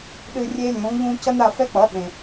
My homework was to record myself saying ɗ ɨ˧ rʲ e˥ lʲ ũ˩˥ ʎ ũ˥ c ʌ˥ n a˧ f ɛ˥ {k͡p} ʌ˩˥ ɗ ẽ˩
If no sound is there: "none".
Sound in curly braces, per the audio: k͡p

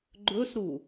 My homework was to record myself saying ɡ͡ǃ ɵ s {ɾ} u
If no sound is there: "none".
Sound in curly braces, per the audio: ɾ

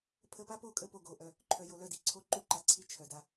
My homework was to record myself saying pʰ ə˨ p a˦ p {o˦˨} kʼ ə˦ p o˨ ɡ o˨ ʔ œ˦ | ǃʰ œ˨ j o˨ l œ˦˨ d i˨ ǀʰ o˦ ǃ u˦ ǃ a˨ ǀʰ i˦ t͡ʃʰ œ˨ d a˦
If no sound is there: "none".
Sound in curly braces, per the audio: o˦˨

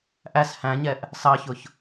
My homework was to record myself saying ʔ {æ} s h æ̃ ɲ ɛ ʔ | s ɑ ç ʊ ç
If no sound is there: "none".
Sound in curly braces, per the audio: æ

